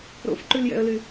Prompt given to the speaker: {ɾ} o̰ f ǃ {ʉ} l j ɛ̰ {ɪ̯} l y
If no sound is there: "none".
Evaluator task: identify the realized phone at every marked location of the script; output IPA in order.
ɾ, ʉ, ə̯

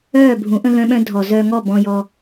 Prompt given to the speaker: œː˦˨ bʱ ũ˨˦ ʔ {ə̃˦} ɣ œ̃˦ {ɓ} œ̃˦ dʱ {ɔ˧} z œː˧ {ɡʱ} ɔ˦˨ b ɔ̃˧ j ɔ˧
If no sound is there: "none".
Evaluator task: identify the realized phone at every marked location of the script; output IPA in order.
ə̃˦, ɓ, ɔ˨, ŋ

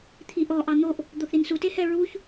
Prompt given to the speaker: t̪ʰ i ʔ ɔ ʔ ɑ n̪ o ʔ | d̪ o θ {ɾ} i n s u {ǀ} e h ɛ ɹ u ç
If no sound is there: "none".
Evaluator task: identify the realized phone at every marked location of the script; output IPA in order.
ɾ, t

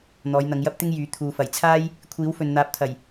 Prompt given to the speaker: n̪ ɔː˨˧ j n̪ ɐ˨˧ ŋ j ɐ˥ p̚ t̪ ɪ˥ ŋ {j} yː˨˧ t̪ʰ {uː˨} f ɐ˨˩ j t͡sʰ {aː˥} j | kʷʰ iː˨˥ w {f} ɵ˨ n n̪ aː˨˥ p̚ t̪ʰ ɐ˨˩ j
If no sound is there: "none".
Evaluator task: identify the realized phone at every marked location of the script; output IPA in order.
j, uː˨, aː˥, f

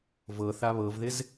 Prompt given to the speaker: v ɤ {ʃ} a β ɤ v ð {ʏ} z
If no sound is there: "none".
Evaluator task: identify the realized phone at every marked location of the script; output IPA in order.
θ, ɪ

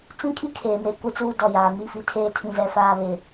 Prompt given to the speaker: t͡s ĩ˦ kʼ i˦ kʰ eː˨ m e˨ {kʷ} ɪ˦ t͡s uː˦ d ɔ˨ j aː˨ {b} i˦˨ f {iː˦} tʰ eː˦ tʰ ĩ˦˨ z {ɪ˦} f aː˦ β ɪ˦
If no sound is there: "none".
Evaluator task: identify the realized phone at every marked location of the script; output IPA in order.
kʷ, m, i˦, ɛ˦

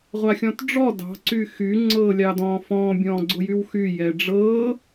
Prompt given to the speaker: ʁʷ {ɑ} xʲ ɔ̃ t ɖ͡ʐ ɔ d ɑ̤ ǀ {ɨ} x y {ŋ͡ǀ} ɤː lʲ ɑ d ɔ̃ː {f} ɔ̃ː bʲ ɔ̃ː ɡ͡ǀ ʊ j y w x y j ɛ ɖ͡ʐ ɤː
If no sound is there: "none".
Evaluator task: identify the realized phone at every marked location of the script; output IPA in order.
a, y, ŋ͡ǀ, f

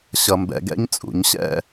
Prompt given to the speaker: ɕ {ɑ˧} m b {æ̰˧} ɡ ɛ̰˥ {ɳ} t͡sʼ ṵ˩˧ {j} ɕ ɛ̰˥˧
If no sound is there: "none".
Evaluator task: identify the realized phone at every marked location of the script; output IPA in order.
ʌ˧, ɛ̰˧, ɲ, ɲ

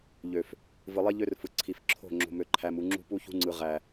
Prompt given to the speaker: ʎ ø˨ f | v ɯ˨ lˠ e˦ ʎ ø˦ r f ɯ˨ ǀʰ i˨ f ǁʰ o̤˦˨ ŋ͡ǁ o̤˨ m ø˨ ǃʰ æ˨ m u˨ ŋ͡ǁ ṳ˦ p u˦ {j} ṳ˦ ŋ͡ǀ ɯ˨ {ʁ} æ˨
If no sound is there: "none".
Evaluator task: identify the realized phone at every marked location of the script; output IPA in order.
ç, ʁ

